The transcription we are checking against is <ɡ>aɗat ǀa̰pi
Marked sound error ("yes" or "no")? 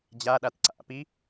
yes